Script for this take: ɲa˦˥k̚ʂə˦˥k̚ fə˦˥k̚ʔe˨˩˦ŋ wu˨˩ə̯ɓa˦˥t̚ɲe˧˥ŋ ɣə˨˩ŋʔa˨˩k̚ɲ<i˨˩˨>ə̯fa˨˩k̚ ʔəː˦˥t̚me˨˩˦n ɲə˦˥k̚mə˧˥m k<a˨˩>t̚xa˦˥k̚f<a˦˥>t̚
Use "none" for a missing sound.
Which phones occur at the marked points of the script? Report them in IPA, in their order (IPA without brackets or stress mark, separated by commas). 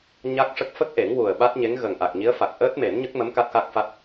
i˧˥, a˦˥, a˦˥